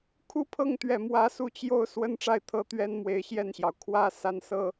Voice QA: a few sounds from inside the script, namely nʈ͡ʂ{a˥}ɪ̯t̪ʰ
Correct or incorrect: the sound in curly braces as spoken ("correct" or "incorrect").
incorrect